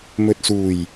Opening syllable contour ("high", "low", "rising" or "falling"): low